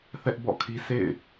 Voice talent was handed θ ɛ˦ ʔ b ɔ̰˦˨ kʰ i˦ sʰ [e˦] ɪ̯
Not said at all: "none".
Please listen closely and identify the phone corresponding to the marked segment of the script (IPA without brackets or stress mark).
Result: ḛ˦˨